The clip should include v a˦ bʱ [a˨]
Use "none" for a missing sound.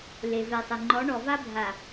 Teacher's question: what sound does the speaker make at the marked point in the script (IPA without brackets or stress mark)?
a˨